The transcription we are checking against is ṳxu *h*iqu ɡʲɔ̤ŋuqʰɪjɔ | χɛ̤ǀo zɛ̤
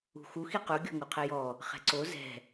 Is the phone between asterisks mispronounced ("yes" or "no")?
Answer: yes